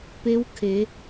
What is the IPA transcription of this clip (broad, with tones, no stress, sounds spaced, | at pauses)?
p eː˧˥ w kʰ eː˩˧